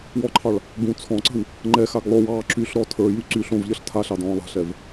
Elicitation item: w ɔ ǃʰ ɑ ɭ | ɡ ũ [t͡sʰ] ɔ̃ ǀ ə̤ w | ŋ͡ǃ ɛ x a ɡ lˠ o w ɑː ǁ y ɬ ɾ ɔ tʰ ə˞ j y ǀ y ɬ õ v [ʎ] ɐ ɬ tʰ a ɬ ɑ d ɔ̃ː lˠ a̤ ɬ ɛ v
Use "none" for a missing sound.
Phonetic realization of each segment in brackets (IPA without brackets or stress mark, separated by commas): t͡sʰ, ʎ